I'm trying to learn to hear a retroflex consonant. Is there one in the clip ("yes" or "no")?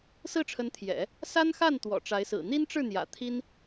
yes